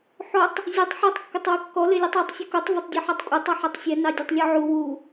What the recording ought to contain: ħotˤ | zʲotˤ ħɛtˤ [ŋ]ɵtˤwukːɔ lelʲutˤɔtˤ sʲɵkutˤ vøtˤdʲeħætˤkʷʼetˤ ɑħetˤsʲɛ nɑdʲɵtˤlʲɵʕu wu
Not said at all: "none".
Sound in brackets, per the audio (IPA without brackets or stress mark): kː